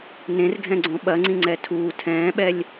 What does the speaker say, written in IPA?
n ẽ r ɡʱ ɛ̃ ɡ͡ǀ õ ɓ ɐ ŋ͡ǀ ĩ ŋ͡ǀ ɛ tʰ uː tʰ ɛ̃ː ɓ ɛ lʲ

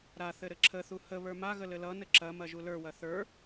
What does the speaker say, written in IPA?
ɾ a θ ɘ ɾ ɘ ǁʰ ə θ u h ə β ə˞ m a ɣ ə l ɘ l ʌ n ɘ ǁ ɐ m ɐ ʒ u l ə˞ w ɐ θ ə˞

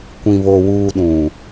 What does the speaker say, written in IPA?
kʷ ĩ˨ β o˨ w uː˨ ɗ ũ˨

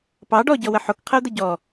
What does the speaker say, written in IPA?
p ɑ ɖ ɔ ɟ ɔ w ə ħ o k qʰ ə ʊ̯ d̪ ə ɟ ɔ

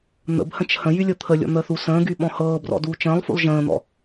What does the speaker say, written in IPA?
n̪ ə̰ b h ə̃ t͡ʃ h ə̃ j y lʲ ɤ t̪ʰ ə lʲ ɔ̰ n̪ əː θ u s ə̃ː ɡ y ɓ ɔ̃ h ɤː b r ɔ̰ d uː t͡ʃ ə̃ː lˠ f ṵ lˠ ʒ ə̃ː n̪ ɔ̰

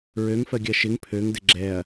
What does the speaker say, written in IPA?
ɹ ø ŋ f ɜ ɡʲ ɜ ʃ ɪ ŋ pʰ ø ŋ d ɪ ɡ͡ǁ ɛ ɐ̯

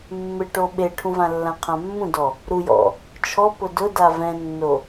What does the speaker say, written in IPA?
mː ɪ ʈ o ɓ e ʈʰ ũ v ã lː ã qʰ ã mː ũ d ɔ | ɾ u j ɔ̰ | t͡ʃʰ ɔ p ʊ d ʊ d a v ɛ̃ nː o

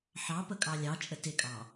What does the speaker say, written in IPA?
ħ ɑ p ə kʼ ɑ lʲ ɑ t͡ʃʼ ə t ɪ kʼ ɑ

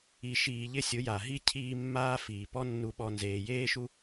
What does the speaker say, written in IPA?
i˧ ʃ iː˧ ʎ ɪ˦ sʲ ʊ˨˦ j a˨ ɦ i˦ cʰ iː˦ mː aː˦ f iː˨ p ɔ˦ nː u˦ ɓ ɔ˦ n z eː˧ j eː˦ ʃ u˦

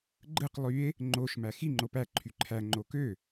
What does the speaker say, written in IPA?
ɡ͡ǃ ɯ q lˠ y e̯ | ŋ͡ǃ o ʃ m æ x i ŋ͡ǃ o p æ ǃʰ y ǃʰ æ ŋ͡ǃ o k ø

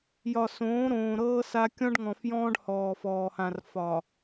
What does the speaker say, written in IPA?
j ɒ˨ s õː˨˦ ɾ õː˨ ɾ ɤː˦ s a˦ kʲ ɔ̃˦ ɖ ŋ ɔ̃˨ f j ɔ̃ː˦ ɖ h ɔː˨ f ɔː˨ h ã˨ r f ɒ˨

